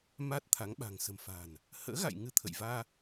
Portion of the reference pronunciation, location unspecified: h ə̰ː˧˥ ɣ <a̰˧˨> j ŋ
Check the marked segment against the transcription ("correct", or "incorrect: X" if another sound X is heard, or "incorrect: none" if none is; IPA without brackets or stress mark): correct